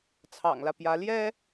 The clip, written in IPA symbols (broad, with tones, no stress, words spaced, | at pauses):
t͡sʰɑ̰˨˩ŋlä˦pjä˧˥ ljɛ˥